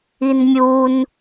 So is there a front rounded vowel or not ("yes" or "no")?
no